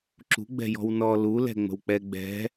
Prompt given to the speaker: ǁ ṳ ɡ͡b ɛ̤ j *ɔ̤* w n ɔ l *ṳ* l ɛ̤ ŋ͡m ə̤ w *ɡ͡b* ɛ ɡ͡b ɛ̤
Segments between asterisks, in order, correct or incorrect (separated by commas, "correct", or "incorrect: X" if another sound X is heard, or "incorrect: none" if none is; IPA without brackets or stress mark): correct, incorrect: u, incorrect: k͡p